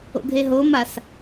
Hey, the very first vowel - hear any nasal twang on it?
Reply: no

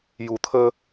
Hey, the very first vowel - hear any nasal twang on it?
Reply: no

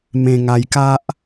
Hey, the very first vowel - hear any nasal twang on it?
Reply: yes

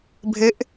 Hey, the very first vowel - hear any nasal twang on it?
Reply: no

